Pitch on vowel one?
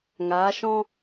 rising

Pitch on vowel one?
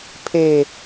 falling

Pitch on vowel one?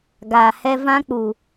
low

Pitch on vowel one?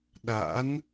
rising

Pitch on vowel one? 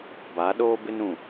rising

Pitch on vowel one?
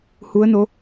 rising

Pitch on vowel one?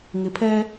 low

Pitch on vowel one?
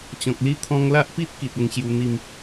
low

